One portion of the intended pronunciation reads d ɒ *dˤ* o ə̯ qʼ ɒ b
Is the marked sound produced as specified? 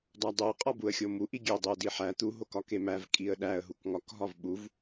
yes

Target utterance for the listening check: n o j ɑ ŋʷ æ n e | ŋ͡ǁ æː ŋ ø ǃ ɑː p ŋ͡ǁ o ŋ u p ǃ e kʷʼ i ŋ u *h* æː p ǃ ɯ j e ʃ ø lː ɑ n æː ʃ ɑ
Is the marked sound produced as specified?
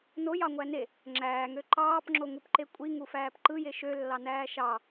no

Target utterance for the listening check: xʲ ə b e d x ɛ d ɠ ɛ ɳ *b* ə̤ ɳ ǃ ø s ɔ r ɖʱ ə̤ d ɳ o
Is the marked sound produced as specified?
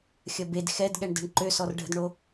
no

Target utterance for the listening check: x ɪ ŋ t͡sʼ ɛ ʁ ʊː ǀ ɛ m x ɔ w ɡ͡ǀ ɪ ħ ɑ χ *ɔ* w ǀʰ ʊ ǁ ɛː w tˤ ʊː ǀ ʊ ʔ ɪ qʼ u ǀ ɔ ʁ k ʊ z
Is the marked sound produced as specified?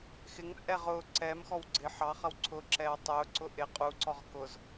no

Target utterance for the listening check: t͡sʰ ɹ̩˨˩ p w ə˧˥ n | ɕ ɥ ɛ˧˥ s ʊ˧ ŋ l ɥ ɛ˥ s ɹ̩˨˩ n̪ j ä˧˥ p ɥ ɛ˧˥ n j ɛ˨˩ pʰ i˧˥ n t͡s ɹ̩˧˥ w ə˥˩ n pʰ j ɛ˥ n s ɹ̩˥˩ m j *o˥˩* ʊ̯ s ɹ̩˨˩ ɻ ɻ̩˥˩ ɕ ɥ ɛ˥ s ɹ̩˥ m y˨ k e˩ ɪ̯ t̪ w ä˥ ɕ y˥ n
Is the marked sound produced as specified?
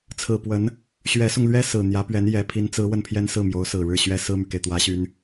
no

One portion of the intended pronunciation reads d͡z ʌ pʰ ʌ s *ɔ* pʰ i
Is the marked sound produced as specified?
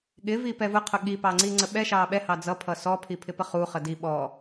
yes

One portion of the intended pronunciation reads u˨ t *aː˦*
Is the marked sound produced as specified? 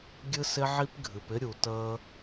no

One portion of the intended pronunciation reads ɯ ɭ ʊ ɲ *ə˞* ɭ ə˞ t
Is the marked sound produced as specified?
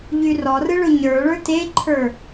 yes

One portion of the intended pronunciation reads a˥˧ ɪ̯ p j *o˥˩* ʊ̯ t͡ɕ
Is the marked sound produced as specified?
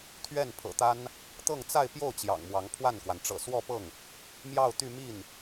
yes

